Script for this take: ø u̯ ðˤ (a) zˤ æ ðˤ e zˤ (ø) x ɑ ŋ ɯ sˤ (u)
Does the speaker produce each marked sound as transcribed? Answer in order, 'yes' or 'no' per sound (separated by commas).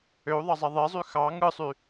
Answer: no, no, no